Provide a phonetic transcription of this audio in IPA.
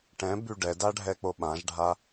ʈ ɛ̃ b y ɖ ɛ d a ɖʱ ɛ k͡p o ɓ ã ʒ ɖʱ a

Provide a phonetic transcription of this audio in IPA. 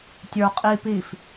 tʲ ə˞ qʼ i p i f

